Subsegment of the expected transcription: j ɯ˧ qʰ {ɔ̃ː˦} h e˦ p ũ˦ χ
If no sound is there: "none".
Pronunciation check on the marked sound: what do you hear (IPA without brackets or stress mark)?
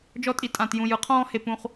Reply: ɔ̃ː˦